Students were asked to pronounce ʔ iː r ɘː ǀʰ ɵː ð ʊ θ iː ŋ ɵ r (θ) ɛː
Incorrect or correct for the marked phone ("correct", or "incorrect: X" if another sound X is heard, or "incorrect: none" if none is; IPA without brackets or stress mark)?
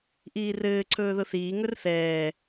correct